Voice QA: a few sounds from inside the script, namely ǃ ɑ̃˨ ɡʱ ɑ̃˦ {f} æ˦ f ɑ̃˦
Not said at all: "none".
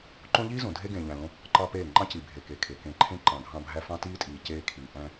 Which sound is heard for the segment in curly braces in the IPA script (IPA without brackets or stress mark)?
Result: bʱ